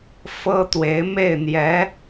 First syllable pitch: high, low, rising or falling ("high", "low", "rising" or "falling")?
high